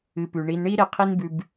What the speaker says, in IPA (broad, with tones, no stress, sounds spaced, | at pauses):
ɨ˨ p ʉ˩ ɳ i˨ n ɳ i˦ ɾ e˨ qʰ i˦ n b ʉ˨ b